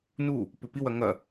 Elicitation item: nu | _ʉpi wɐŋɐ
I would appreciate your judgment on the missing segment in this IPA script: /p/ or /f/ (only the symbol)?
p